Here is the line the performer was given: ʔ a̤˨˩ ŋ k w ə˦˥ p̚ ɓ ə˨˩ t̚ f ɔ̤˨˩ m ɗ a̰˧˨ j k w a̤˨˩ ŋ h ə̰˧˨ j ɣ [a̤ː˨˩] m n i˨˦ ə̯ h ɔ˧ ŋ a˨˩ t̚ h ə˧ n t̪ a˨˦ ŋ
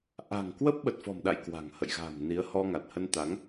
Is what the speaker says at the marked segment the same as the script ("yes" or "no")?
yes